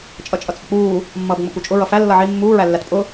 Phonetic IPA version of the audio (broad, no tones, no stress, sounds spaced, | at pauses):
t͡ʃʼ ʌ t͡ʃʼ ʌ t͡sʼ ʊ k͡p uː | mː ʌː b ŋ͡m ʊ k u t͡ʃʼ ʊ ɹ ʌ f æ lː ʌ ʕ i mː uː ɹ æ lː æ t pʼ ʊ